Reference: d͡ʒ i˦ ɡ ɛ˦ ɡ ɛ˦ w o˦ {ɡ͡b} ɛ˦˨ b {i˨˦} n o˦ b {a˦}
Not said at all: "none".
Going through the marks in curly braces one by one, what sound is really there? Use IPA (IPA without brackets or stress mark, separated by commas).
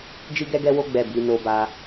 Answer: ɡ͡b, i˨˦, a˦